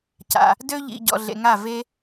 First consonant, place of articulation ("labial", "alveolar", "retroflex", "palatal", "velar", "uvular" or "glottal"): palatal